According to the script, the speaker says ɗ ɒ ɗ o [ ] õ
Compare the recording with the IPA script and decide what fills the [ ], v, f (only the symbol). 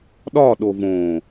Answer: v